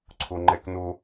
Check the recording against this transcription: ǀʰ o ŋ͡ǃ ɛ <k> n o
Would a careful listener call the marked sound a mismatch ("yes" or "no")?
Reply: no